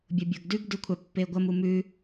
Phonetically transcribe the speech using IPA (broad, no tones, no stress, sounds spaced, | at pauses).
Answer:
bʲ o bʲ o ɡ d ʉ ɡ d ʉ kʷʰ a pː e ɡʷ ɐ m u m ʉ